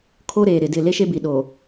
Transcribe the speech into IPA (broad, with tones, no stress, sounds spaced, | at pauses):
kʰ o˦ ɾ eː˨ ɾ ɪ˨ d ɪ˦˨ l e˦ ʃ e˦ b i˨ ɗ o˨